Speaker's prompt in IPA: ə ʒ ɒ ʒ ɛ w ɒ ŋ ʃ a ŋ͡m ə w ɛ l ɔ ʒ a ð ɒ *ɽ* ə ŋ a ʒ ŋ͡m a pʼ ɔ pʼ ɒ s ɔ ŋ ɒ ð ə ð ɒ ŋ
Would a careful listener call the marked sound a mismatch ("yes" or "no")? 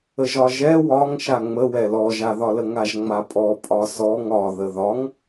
yes